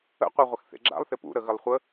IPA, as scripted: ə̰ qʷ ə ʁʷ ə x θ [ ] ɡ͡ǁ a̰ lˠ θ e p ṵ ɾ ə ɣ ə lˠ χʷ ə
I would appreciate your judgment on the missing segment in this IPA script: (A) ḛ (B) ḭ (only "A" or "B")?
A